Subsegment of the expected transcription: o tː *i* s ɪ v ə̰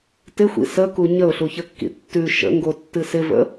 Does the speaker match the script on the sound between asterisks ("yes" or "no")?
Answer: no